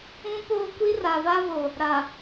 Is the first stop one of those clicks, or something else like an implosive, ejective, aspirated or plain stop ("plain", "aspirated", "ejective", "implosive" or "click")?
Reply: plain